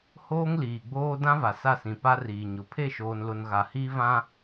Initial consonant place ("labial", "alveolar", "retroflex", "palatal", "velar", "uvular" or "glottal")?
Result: glottal